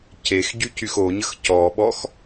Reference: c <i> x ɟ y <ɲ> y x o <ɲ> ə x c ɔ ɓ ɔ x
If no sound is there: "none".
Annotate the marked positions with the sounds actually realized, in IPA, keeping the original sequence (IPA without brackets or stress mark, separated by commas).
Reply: e, c, ɲ